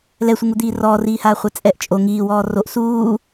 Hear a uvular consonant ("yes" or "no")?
yes